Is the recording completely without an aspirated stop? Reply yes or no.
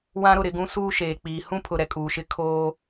no